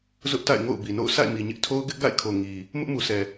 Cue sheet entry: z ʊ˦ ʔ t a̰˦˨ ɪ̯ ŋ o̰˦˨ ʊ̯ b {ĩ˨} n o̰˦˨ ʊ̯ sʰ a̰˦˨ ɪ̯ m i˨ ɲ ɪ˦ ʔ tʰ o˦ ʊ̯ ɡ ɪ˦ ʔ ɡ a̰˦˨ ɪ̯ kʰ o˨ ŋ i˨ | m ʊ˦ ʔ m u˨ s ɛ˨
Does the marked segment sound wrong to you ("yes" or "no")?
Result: yes